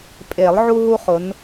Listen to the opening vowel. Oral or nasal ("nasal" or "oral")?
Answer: oral